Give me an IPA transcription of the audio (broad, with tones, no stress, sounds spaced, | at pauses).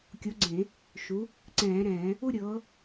kʲ o˨˦ ɡ͡ǀ ẽ˧˩˧ | ʃ u˨˦ | ǀ ɛ̃ː˧˩˧ ɾ ɛ̃ː˧˩˧ | u˥˧ ɾʲ ɤː˨˦